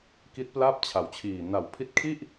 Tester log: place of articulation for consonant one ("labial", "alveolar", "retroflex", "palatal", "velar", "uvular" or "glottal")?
velar